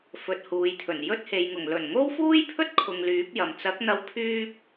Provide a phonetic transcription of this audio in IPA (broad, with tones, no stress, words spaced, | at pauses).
fɵ˨t̚huː˨jt̪ʰɵ˨˩n jɵ˥t̚he˨jŋʊ˨˩ŋ lɵ˨˩nŋo˥wfuː˥jpʰɵ˥t̚ kʰʊ˧ŋlyː˨˥p̚jɐ˨m t͡sɐ˨˥k̚n̪ɐ˧w pʰyː˥p̚